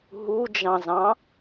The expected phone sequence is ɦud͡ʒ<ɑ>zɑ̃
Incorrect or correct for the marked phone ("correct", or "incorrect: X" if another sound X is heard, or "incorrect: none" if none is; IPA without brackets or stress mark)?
incorrect: ɑ̃